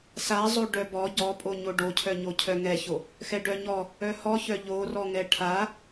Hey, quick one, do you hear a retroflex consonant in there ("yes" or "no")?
yes